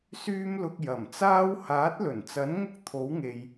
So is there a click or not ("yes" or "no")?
no